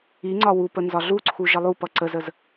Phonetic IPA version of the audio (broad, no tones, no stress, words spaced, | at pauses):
iŋ͡ǀɒ wupə nzɒɮuǀʰu ʒəlˠupʌ ǀəzəz